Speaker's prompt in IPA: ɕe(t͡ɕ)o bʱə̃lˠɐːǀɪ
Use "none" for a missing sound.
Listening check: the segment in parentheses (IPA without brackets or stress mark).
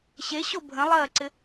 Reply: ɕ